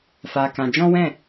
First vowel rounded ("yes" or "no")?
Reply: no